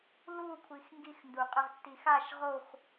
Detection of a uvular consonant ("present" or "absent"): present